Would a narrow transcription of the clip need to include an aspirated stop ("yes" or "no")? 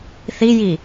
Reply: no